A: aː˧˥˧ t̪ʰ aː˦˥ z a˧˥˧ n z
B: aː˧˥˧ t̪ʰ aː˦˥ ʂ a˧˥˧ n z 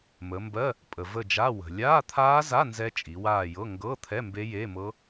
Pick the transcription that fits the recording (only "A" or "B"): A